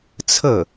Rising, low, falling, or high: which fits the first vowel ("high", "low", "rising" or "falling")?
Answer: falling